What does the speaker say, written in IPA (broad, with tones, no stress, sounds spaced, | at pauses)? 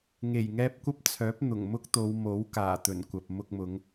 ŋ e˨˩ j ŋ ɛː˧ p̚ kʷ ɐ˥ p̚ t͡sʰ œː˨˥ p̚ n̪ ʊ˨˩ ŋ m ʊ˥ k̚ t̪ o˨˧ w m o˨˥ w k aː˨˩ t̪ ɵ˨˩ n kʷ ɐ˨ p̚ m ʊ˧ k̚ m ʊ˨˧ ŋ